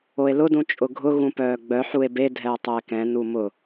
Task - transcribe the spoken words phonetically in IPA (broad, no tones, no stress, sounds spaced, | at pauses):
o e̯ l ʊ d ũ t͡ʃʼ ʊ ɡʱ ʊ ɣ ũ p œː ɡ͡b œ ħ u e̯ b e dʱ ɛ o̯ tˤ ʊ e̯ k ɛ̃ n u m ʊ